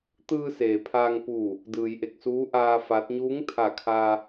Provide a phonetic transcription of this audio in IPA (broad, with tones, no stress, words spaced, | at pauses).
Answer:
t̪ɯː˧seː˩ pʰaː˧ŋpuː˧˩ | dɯː˩jʔe˧˩k̚ suː˧˥ʔaː˧ fa˧˥t̚ ɲuː˧˥ŋt̪ʰa˧˩kʰaː˧